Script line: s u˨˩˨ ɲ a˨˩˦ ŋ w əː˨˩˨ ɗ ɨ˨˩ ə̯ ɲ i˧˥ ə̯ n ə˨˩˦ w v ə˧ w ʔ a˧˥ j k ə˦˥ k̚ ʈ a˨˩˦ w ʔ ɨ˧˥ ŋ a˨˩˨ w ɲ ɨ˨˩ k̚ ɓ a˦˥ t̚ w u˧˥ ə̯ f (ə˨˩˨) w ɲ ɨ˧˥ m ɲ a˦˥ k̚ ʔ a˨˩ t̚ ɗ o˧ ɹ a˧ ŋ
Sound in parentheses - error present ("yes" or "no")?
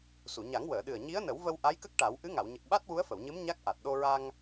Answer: no